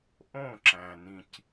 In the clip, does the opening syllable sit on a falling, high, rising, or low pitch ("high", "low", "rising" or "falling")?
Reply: falling